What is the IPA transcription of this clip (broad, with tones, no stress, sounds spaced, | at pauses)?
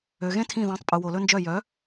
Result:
ø˨ ɣ ẽ˦ tʰ ĩ˦˨ ð æ̃˨˥ tˤ pʼ u˨ w o˨ l ɵ˦ n d͡ʒ œ˦˨ j œ˨˥